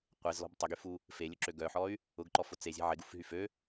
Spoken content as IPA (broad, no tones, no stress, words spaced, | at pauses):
qʷezlɔ̤b tˤʊɡyfu | felʲʊǁø ɡœħɔy̯ | ʊɡǃɔfʊ t͡sezʲe̤ ʕɪɡufɦy fø